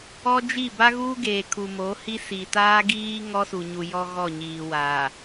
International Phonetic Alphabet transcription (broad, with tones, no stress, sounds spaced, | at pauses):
ɔ˦ d͡ʒ i˦˨ b a˦ ɣ uː˦ ɡ eː˨ kʰ u˨ m o˨˦ h i˦ s i˨ t aː˦ ɡ iː˦ ŋ ɔ˦ s u˨ ɲ u˨ j ɔ˦ ɣ ɔ˦˨ ɲ iː˨ w aː˨